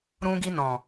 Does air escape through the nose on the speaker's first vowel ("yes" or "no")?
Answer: yes